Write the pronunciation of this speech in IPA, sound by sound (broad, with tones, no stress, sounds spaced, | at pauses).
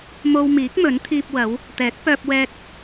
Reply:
m o˧ w m iː˨˥ k̚ m ɵ˨˥ n t̪ʰ iː˧ p̚ w ɐ˨˥ w | t̪ ɛː˨˥ k̚ p œː˧ p̚ w ɛː˧ k̚